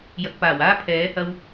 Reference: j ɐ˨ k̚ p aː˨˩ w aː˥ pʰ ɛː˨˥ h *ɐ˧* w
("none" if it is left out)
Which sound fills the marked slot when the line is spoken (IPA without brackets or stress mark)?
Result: ɐ˧